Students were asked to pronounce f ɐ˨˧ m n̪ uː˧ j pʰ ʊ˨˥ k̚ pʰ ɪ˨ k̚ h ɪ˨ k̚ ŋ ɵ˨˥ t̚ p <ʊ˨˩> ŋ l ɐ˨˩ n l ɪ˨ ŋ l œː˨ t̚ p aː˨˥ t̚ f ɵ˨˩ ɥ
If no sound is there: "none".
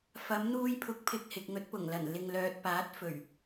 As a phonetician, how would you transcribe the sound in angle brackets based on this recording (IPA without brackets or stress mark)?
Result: ʊ˨˩